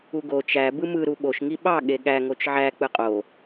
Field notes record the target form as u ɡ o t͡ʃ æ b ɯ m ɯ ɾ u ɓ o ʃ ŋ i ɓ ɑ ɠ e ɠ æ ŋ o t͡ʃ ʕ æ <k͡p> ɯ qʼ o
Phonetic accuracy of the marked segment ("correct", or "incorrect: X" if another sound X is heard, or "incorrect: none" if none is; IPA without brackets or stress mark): correct